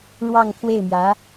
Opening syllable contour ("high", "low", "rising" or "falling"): falling